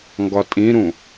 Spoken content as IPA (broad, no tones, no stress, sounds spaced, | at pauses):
ŋ ɡ ɒ tʼ ĩ ɾ ũ